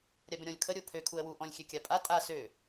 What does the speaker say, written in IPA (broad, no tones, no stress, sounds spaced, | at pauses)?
ɾʲ a b ə̃ ɾʲ ɔ̃ lʲ kʰ ə ɾʲ o pʰ ø kʰ u ə̯ w u ʔ ɔ̃ lʲ xʲ ø kʲ a pʼ a tʼ a s ø